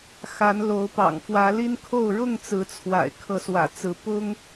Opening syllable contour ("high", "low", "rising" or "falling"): rising